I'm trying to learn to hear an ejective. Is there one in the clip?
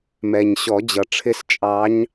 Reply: yes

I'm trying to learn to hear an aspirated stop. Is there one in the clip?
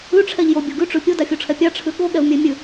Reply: yes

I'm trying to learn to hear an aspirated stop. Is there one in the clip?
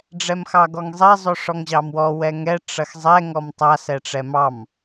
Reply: no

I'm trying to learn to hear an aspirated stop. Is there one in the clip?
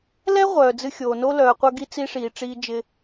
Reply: no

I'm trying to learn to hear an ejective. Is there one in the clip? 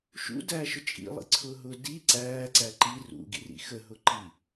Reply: yes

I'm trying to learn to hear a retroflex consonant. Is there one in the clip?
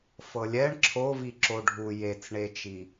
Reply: yes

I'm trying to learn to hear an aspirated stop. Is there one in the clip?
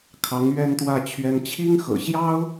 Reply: yes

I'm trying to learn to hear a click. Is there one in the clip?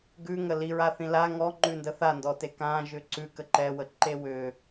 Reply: yes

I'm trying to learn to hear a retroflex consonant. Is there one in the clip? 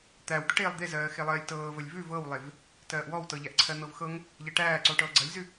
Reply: yes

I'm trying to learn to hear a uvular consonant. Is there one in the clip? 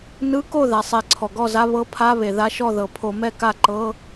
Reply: no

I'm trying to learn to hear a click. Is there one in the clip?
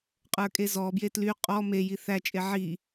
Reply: no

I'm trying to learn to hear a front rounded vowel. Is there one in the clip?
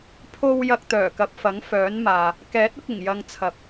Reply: yes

